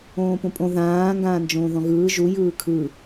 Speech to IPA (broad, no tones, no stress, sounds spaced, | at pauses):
õː p õ pʼ õ ð ãː ŋ ɡ ãː n d͡ʒ õː ð ɔ̃ ɣ ɯː ʒ u j ɯː kʰ ɯ